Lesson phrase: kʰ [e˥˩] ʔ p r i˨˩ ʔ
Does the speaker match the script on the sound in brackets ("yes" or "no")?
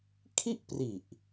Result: no